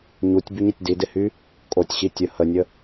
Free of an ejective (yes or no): no